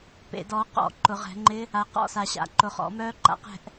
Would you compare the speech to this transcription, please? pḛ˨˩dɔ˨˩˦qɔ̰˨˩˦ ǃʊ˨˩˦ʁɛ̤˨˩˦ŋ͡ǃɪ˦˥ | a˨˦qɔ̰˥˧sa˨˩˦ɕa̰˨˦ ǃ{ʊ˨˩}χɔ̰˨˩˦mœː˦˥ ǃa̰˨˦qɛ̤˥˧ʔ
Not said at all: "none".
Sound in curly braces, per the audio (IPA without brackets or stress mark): ʊ˨˩˦